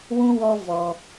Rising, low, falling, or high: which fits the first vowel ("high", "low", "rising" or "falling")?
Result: high